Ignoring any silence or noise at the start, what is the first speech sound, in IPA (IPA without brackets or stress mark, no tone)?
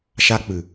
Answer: ʃ